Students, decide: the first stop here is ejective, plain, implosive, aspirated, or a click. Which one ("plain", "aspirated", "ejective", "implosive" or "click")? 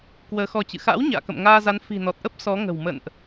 plain